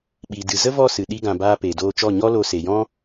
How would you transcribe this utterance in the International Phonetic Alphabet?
ɓi˨ dɨ˨zə˦vɔ˦˨sɨ˨ ɗi˧ɡã˨baː˧ peː˨doː˧t͡ʃɔ˦˨ ɲɔ˦lo˧se˨jɔ̃˦

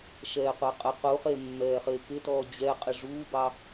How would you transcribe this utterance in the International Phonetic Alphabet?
ʃɛːqʷɑqʼə quχe mːɛːχɪːkɪtɔː d͡ʑɛ qʼɪʐuːbɑ

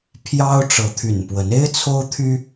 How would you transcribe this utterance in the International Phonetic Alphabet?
pʰjɑ˦ʊ̯ ʈ͡ʂɤ˨˦t̪ʰy̰˨˩npwə˨˦n e˦ɪ̯t͡sʰo˦ʊ̯t̪ʰy˦

